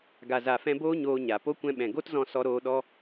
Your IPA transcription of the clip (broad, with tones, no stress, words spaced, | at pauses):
ɡa˨za˨fɛ̃˧boː˦ ɲoː˧ɲa˨ po˦kʷɛ̃˧ɓɛ̃˨ ɡo˦tzɔ̃˧ sɔ˧ɾoː˧ ɗɔ˦